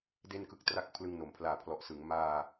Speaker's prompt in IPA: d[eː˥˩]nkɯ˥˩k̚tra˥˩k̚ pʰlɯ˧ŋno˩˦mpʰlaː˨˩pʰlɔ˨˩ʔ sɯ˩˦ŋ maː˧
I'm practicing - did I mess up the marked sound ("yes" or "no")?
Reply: yes